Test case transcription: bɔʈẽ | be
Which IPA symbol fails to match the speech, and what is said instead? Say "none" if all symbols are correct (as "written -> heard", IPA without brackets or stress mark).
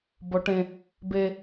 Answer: none